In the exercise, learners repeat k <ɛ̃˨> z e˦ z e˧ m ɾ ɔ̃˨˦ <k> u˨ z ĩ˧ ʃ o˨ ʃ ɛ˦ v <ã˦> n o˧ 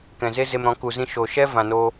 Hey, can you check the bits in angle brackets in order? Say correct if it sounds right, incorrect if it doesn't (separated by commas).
correct, correct, incorrect